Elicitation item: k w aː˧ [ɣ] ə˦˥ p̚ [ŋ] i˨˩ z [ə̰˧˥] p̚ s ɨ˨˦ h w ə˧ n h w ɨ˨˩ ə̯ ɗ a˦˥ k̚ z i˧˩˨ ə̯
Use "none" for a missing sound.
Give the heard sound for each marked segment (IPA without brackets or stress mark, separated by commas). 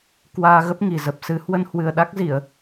ɣ, ŋ, ə˨˩